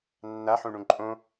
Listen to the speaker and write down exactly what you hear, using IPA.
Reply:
nː a ħ ũ ɳ ũ ǃʼ õ

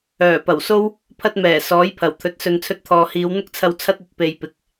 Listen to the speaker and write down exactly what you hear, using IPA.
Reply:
œː˨˩ p ɐ˨˩ w s o˥ w | pʰ ɐ˧ t̚ m ɛː˨˩ s ɔː˨˥ j pʰ ɐ˨˩ w t̪ʰ ɵ˨˥ t̚ s ɵ˨ n t͡sʰ ɵ˧ t̚ t̪ʰ ɔː˨ h iː˨˧ w n̪ ʊ˥ k̚ t͡sʰ ɐ˧ w t͡sʰ ɐ˥ t̚ ɵ˨˥ t̚ p e˨ j p ɪ˨ k̚

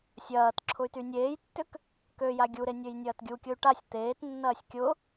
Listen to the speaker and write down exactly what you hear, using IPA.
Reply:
sʲ ɐː t ǁʰ ʊ y̯ t y nʲ eː j tː ʏ k | k ø j a ɡʲ u ɾ e nʲ ø j nʲ ɐː t ɡʲ u kʲ ʊ y̯ ʈ a sʲ t̪ eː t nː ɐː sʲ kʲ ʊ

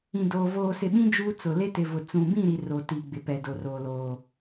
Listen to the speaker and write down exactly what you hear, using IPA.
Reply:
ĩ˨ d oː˨ v oː˨ s ɪ˨ ɓ ĩ˦ d͡ʒ uː˦ t͡s ʊ˨ l e˦ t ɪ˨ v ʊ˨ t͡s ũ˨ b ĩ˦˨ ɾ i˨ r o˨ t i˨ ɡ͡b ɪ˨ p ɛ˨ d o˨ r oː˨ l oː˨

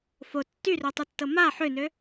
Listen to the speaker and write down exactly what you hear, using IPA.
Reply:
f o tː y r ø tˤ y tː ɤ m a ħ ø n ø

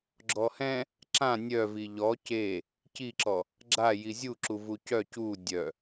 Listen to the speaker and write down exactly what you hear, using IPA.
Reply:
ɡ͡ǁ ɔ h ɛ̃ | ǁ ã nʲ œ v i ʎ ɔ c e | c i ǁ ɔ | ɡ͡ǁ a j i zʲ u ǁ u v u c œ c u dʲ œ

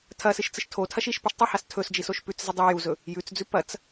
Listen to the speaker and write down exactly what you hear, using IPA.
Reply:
tʰ ɐ s ɨ ʃ t͡s ɨ ʃ tʰ o tʰ ɐ ʃ i ʃ p ɵ ʃ tˤ ʉ h a s tʰ ɵ s d͡ʒ i s o ʃ p ʉ t͡s z ɨ dˤ ʉ j u z ɵ | j ʉ t͡s d͡z ʉ p ɐ t͡s

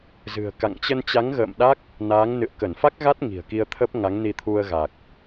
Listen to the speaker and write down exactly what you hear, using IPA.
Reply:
z ɨ̤˨˩ ə̯ k a̰˧˨ ŋ t͡ɕ ə˧ n t͡ɕ a˨˦ ŋ ɣ ə̰ː˧˨ m ɗ a˦˥ k̚ | n aː˨˦ ŋ n ɨ̰˧˨ ə̯ k ə˧˩ n f a˦˥ k̚ ɣ a˦˥ t̚ ŋ i̤˨˩ ə̯ k i˧ ə̯ t̪ʰ ə˦˥ p̚ ŋ a˨˦ ŋ n i˧ t̪ʰ u˧ ə̯ ɣ a˨˩ k̚

